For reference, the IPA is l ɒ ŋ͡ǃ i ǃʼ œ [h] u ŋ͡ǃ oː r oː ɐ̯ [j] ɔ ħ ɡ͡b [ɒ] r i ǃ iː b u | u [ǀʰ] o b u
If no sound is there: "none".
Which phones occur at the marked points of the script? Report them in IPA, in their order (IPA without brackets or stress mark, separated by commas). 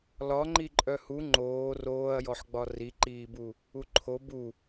h, j, ɒ, ǃʰ